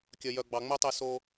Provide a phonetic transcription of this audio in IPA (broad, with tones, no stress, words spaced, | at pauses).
kʲœ˨ jœ˨ɡ͡bɑ˨ŋ͡mø˦tˤe˧ so˧